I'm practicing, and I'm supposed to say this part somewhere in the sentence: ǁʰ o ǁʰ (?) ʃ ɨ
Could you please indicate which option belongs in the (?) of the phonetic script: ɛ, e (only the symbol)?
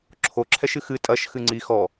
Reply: ɛ